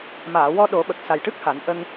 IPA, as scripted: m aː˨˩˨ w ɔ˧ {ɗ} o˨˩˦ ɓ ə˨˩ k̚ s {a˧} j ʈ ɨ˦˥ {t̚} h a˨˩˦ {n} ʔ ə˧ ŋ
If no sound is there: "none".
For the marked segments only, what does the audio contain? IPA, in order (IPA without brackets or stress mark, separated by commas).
ɗ, a˨˩, k̚, n